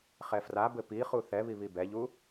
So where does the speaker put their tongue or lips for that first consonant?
uvula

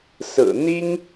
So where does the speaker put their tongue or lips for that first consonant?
tongue tip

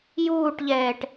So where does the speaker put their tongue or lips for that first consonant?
palate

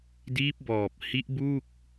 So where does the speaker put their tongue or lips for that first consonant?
tongue tip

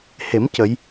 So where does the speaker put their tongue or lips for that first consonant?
throat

